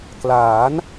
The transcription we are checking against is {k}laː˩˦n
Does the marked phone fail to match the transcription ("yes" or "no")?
no